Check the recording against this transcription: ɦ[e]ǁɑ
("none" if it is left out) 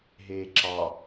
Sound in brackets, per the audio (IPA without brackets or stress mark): eː